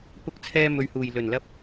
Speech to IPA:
p ʊ˧ k̚ t͡sʰ ɛː˧ m ɵ˨ ɥ h uː˨˩ j l ɵ˨˩ n l ɐ˧ p̚

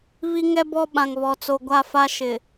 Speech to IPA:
β i˦ ŋ ɛ˦ b ɔ˦ ɓ ã˨ ŋ β ɔ˨ t͡s o˨ ɡʷ a˦˨ f a˦ ʃ ɪ˨

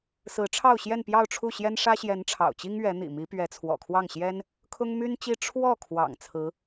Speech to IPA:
s ɹ̩˧˥ ʈ͡ʂʰ ɑ˥˧ ʊ̯ ɕ j ɛ˥˧ n p j ɑ˥˧ ʊ̯ ʈ͡ʂʰ u˥˩ ɕ j ɛ˥ n ʂ ä˥ ɕ j ɛ˧˥ n ʈ͡ʂʰ ɑ̰˨˩ ʊ̯ t͡ɕ i˥ ŋ ɥ ɛ˧˥ n̪ ḭ˨˩ m i˧˥ p ɥ ɛ˧˥ t͡sʰ w ɔ̰˨˩ kʰ w ɑ˥˩ ŋ ɕ j ɛ˥ n | kʰ ʊ˥ ŋ m y˥ n t͡ɕ i˥ ʈ͡ʂʰ w ɔ˥˩ kʰ w ɑ̰˨˩ ŋ t͡sʰ ɹ̩˧˥

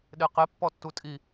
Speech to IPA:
ɗ e q e pː ɔ tː u tʼ i

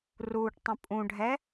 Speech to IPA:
r uː ʈ tˤ ə̃ pʼ ũ ɖʱ ɛ

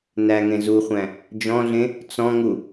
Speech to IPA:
n æ ŋ ẽ z u χʷ æ̃ | d͡ʒ ɔ̃ ɮ ẽ | t͡s ɔ̃ ŋ u

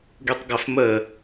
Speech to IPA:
ɡ y tˤ ɡ a f m ə

